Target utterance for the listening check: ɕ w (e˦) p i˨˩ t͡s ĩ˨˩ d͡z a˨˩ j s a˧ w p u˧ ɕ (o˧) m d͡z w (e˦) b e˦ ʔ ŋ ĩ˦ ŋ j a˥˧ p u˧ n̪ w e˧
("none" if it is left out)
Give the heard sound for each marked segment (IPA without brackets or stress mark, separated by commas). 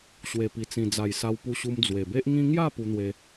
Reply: e˨˩, u˧, e˨˩